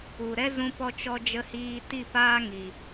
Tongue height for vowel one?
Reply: high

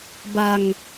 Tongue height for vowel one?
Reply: low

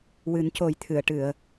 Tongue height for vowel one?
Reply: high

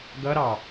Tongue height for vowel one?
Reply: mid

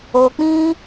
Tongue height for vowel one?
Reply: mid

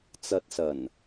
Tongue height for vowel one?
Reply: low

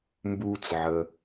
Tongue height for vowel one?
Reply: high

